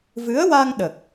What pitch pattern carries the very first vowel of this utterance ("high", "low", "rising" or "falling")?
rising